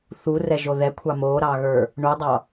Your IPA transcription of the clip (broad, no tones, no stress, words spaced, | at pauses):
θurɛʒo ðɛkʷʰɑ moɾɑɣə˞ | ɳudˤɑ